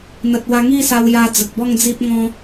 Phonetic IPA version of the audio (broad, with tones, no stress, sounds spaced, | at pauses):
n̪ ə˨ t̚ w a˧ ŋ i˥˧ s a˧ w j a˧ d͡z ə˨ k̚ b ɔ˥˧ ŋ d͡z i˦ p̚ ŋ ɔ̃˦